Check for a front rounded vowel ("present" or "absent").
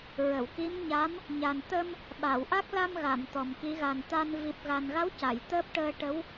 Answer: absent